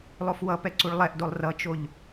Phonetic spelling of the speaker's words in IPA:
lˠ o f w ʌ p ɛ ǀ u ɭ lˠ ɛ ʔ d o lˠ r ʌ t͡ʃ o ʎ

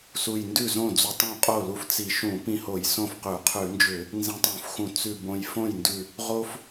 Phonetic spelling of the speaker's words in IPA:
s u˧˩ j n d ʉ˥˩ z õ˥˩ d͡z u˧ tˤ õ˥˩ qʼ o˥˩ l u˧ f t͡s i˧˩˧ ʃ ũ˧˩˧ p ĩ˧˩ h o˧˩˧ j s õ˥˩ f q ʉ˧˩˧ qʰ ʉ˧˩˧ n d͡ʒ ʏ˧˩˧ | n z ĩ˧ tˤ ũ˧˩˧ f x ũ˧˩˧ t͡s ʉ˧˩ b õ˧˩ j f õ˥˩ j n d ʉ˧˩ | ʁ o˧ f

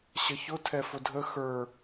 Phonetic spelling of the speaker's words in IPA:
ɕ ə ç ʊ tʰ ɛ f ʊ dʱ ə x ə˞

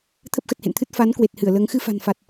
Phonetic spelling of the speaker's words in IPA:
t̪ʰ ə˦˥ p̚ x ə˨˩ t̚ h ḛ˧˨ n t̪ʰ ɨ˦˥ t̚ f a˨˦ n k w e˨˩ t̚ h ɨ˧˩ ə̯ l əː˨˦ ŋ x ɨ˧ f a̤˨˩ n f a˨˩ t̚

